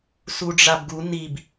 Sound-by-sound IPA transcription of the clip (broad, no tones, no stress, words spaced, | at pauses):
suɖ͡ʐabɡu nib